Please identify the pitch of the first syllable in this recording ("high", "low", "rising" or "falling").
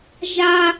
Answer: high